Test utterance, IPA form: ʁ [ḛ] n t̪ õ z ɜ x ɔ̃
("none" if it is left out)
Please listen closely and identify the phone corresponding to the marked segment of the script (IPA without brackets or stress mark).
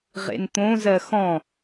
ḛ